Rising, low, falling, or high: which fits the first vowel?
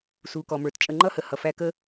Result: low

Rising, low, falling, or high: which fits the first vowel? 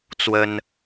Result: high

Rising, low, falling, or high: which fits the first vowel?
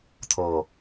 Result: low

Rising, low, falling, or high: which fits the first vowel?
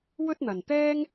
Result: high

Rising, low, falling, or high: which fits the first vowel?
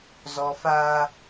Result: high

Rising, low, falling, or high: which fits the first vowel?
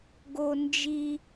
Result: high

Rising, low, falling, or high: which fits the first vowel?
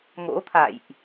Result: rising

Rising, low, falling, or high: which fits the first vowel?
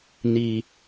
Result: low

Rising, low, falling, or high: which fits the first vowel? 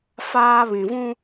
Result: high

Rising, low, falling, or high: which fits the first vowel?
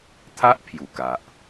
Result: high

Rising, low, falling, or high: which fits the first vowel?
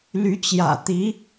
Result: rising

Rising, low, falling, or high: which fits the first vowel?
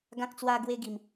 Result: high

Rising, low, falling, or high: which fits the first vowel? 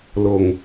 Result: low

